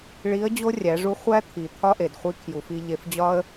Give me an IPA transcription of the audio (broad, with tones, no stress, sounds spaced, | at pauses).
ɭ i˧˥ ə̯ d͡ʑ o˥ rʲ æ˩˧ ʐ u˧˥ χʷ æ˥ t̪ʰ i˩ t̪ʰ ɒ˥ ʔ e˩ d χʷ i˧˥ kʰ j u˩˧ f i˧ ʎ e˧ f d͡ʑ ɒ˥ ə̯